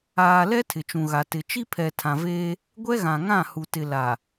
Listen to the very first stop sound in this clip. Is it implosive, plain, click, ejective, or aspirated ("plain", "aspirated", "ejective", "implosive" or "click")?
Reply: aspirated